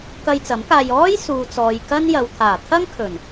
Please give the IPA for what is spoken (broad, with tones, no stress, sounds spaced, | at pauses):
k ɐ˧ j t͡s ɐ˨˥ m k aː˧ j ɔː˥ j s uː˨ t͡s ɔː˨ j k ɐ˥ n j ɐ˨ w t̪ʰ aː˨˩ t̪ʰ ɐ˥ ŋ kʰ ɵ˨˩ n